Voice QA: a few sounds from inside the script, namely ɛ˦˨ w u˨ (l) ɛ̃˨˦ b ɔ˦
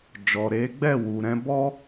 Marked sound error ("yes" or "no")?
yes